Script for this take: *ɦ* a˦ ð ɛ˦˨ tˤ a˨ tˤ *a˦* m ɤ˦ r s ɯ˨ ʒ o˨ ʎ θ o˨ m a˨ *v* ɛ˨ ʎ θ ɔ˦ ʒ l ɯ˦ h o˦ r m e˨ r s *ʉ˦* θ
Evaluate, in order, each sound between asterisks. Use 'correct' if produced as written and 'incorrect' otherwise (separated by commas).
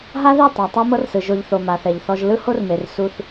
correct, correct, incorrect, incorrect